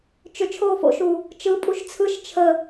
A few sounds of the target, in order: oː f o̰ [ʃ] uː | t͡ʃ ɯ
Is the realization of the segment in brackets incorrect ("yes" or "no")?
no